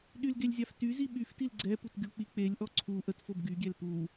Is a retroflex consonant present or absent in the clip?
absent